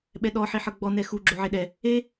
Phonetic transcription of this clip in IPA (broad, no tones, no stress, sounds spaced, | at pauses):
ɓ ɛ ɗ ɔ ħ i ħ ɤ ɡ͡b ɔ n ɛ x u ɡ͡ǁ o ʕ e ɗ ɛ | e